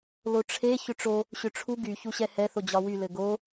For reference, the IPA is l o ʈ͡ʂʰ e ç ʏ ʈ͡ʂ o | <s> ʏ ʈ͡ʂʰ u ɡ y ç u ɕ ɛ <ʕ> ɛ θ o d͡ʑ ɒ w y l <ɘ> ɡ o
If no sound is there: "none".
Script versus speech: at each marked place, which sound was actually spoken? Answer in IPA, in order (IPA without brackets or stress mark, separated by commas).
ɕ, h, ɘ